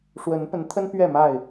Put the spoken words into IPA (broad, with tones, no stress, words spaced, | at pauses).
ʂwə˨˦npə˨˦nt̪ʰə˦n pɥɛ˥˨ma˥˨ɪ̯